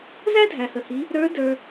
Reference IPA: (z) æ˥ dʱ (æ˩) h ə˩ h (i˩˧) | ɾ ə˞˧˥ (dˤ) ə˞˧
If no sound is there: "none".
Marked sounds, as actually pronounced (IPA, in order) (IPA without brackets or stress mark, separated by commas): z, æ˩, i˩˧, d